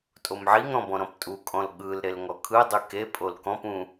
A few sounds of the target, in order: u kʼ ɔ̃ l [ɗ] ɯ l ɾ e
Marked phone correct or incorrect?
incorrect